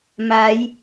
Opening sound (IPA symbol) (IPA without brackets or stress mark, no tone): m